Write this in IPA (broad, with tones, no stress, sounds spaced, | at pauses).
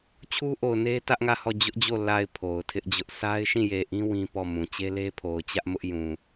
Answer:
t͡ɕʰ u˦ ʔ o˨ ʊ̯ n e˦ t ä˦ ʔ ŋ ä˦˨ h ɔ˦˨ d͡ʑ ʊ˦ ʔ d͡ʑ o˦˨ l a˨ ɪ̯ pʰ o˨ ʊ̯ tʰ ɪ˦ ʔ d͡ʑ ʊ˦ ʔ sʰ a˦ ɪ̯ ʃ ĩ˦˨ j e˨ ʔ ĩ˦ w ĩ˦ p ɔ˦˨ m ũ˨ t͡ɕ e˦ l e˦ pʰ o˨ ʊ̯ t͡ɕ ä˦ ʔ m ʊ˦ ʔ j ũ˨